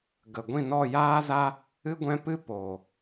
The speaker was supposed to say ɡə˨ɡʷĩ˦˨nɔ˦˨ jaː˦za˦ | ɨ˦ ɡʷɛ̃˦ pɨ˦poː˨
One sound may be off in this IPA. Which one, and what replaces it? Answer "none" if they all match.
none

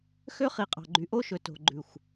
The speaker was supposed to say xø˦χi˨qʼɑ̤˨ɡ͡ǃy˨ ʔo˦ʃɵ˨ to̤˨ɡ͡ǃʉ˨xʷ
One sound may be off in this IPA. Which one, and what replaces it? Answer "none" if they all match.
none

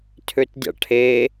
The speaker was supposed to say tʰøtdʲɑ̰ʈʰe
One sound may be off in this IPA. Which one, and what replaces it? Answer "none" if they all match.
none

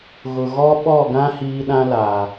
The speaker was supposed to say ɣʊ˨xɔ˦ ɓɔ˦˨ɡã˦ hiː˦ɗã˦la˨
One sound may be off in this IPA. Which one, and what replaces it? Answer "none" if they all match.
x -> ɣ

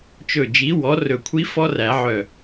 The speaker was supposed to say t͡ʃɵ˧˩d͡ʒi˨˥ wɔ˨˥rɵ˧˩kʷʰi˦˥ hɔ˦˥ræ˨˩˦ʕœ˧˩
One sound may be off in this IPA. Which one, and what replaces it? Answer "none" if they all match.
h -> f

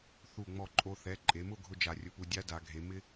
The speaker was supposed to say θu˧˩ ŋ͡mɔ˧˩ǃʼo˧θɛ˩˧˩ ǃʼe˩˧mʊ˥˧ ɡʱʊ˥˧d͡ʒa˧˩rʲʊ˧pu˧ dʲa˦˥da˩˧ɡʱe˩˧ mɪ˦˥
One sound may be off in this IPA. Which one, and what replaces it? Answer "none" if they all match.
none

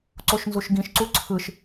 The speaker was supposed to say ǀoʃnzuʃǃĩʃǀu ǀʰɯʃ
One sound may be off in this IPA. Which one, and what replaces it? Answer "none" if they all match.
ǃ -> ɡ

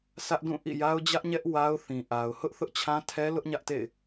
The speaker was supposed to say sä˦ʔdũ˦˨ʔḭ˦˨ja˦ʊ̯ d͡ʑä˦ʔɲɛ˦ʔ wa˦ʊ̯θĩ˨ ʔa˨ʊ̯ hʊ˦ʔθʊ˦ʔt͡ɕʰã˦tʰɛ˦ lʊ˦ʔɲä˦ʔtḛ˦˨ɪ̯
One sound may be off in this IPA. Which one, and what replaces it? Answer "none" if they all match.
none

